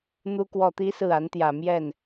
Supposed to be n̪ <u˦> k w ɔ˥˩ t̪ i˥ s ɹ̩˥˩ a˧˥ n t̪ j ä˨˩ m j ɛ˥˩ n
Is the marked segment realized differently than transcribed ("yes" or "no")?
yes